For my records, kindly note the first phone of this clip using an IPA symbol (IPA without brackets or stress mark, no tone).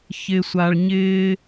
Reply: ç